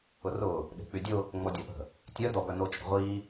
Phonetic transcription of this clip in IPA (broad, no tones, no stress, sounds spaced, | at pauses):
ʊ r ʊː | ɗ e̤ k͡p y dʲ ʊ | ŋ͡m ɔ dʲ ɔ ʔ ə̤ | tʲ œ d ɔ b œ n o t͡ʃʼ ə̤ ʁʷ iː